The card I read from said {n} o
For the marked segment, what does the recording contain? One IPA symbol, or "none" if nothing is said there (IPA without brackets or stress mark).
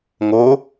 ŋ